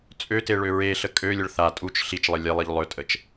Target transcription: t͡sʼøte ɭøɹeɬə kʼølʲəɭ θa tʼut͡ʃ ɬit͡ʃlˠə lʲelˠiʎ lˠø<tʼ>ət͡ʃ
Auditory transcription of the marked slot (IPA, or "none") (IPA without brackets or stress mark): tʼ